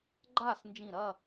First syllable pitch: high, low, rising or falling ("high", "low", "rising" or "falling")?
falling